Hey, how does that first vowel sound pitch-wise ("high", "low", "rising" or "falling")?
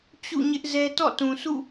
falling